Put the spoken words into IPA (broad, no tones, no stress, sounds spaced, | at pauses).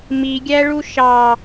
m i ɡʲ æ ɭ u ʃ ɑ